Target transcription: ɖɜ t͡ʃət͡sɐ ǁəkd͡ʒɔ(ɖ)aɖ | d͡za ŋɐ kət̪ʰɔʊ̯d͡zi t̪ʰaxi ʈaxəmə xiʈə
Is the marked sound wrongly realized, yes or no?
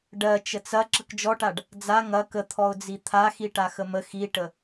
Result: yes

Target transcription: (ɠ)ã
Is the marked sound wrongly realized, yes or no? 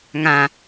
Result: yes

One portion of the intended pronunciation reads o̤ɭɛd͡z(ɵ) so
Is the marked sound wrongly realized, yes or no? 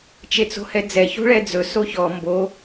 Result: no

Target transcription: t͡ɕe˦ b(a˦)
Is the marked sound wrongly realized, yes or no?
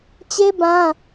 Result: yes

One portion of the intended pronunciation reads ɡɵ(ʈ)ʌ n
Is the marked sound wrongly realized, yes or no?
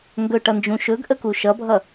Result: no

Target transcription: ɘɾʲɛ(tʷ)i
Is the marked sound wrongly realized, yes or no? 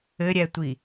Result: no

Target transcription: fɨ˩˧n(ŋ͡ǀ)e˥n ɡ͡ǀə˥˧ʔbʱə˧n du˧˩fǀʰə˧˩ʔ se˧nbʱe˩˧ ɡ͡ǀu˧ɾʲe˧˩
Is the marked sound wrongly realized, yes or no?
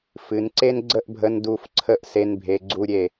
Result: yes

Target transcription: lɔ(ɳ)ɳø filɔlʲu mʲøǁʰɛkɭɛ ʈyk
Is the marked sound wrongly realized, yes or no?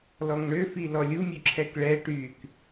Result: yes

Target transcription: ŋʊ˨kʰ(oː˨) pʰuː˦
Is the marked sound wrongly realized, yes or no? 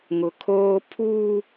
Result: yes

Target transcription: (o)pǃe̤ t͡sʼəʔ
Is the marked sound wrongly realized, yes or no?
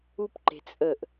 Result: yes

